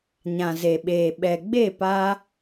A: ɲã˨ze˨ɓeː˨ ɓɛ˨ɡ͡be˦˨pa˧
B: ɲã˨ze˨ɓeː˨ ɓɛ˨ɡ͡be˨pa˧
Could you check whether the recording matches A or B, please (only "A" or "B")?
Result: A